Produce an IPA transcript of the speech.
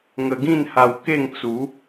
ŋ ə˧ ɡ ĩ˥˧ n h a˧ w k e˥˧ ŋ t͡s u˨˦

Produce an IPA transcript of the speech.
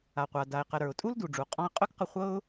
a˩ qʷ a˩ d a˩ ɪ̯ q ə˩ ɾ ə˞˩ ʊ̯ tʼ u˥ l d u˩ ɖ͡ʐ u˩ qʼ ɔ̃˧ ə̯ qʼ œ˥ k q ə˧ χʷ ɤ˥ ʊ̯

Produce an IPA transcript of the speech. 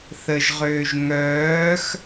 θ ə ʒ ʁ øː ʒ ŋ œː x

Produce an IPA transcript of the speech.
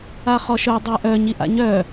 a χ ɔ ʃ œ dˤ ɛ ʔ œ ɲ i ʔ a̰ ɲ œ

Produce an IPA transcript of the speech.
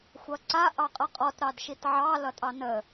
xʷ ʌ ǀ a ʔ ɑ qʼ ʌ qʼ ɔ t ɾ ɑ d ʃ i t ʕ ɑ l ʌ tʼ ɑ n ə

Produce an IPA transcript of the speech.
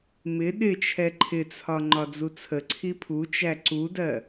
m ɪ ɗ ɪ t͡ʃʰ ɛ ǃʰ ɪ t͡sʰ ɒ ŋ͡ǃ ɒ d͡z u t͡sʰ ə ǀʰ i pʰ u t͡ʃ æ ǀ u d ɜ

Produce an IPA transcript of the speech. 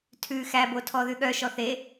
tʰ ʉ x æ b o tʰ ɔ ð ʉ ɠ œ ʃ ɔ θ e

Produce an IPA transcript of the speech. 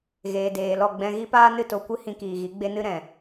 ɣ eː˨ d eː˨ l ɔ˦˨ ɡ͡b ɛ̃˧ ɣ i˦ p aː˦ n ɨ˦˨ t o˧ kʷ ɨ˦ h ĩ˧ k iː˨ ɣ i˨˦ ɡ͡b e˦ n ɨ˦ ɾ ɛ̃˨

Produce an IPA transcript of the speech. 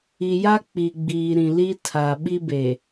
i˨ j a˦ k͡p i˨ ɡ͡b iː˨ ɾ ĩ˨ l i˦ tʰ a˨ ɓ i˦ b e˨

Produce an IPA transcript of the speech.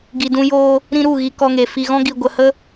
ɡ i˨ d ũ˧ j oː˧ | ɾ ĩ˧ ɾ u˦˨ ɣ i˧ k ɔ˧ ŋ e˨ f i˧ ɣ ɔ̃˦ ɡ i˧ ɡʷ ə˧ h ə˦

